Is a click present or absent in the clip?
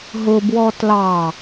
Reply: absent